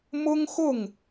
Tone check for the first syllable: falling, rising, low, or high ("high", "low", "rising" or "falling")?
high